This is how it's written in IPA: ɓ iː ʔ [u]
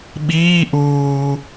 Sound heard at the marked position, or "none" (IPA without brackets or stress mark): uː